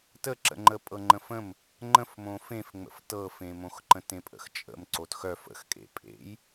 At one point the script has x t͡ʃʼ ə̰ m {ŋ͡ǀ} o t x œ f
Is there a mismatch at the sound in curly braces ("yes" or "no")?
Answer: yes